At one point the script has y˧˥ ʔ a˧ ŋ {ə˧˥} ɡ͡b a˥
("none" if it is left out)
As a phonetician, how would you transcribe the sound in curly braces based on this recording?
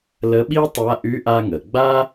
ə˩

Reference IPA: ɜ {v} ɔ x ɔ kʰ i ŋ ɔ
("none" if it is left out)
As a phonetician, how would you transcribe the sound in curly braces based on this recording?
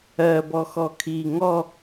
b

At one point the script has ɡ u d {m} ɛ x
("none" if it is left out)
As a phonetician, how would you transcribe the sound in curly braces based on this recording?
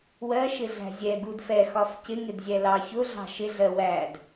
f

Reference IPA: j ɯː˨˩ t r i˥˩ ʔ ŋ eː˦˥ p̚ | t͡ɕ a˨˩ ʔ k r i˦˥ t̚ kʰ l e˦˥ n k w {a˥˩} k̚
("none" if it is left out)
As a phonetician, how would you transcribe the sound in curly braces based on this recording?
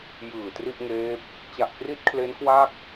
a˥˩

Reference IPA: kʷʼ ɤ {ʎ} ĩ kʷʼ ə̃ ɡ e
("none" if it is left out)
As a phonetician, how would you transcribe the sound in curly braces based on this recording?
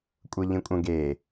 ʎ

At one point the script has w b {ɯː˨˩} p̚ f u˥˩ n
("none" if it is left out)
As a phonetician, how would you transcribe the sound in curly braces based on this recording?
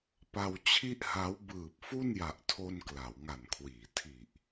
ɯː˨˩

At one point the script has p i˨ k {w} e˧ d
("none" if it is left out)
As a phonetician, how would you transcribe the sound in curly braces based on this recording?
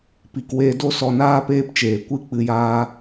w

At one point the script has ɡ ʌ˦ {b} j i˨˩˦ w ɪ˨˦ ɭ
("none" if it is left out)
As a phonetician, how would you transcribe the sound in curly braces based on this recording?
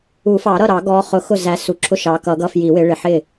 f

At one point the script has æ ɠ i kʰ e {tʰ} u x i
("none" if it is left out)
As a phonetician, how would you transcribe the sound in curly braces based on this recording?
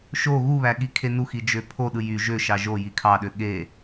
n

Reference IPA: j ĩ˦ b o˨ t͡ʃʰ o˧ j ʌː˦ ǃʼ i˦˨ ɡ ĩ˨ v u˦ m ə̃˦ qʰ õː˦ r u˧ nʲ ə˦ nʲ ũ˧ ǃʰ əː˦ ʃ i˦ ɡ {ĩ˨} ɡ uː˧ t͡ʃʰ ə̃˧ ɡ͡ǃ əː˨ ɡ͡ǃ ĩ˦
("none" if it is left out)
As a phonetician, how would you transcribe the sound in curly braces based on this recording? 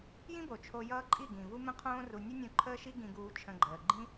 ĩ˧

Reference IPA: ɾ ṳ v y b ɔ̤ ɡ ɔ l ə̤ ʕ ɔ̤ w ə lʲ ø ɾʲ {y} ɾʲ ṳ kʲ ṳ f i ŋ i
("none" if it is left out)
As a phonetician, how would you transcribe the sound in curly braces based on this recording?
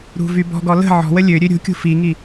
ø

